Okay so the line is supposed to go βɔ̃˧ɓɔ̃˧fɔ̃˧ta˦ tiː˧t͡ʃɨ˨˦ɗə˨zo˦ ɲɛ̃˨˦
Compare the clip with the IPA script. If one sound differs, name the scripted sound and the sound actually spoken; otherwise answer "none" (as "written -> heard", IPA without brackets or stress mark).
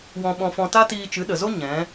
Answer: β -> w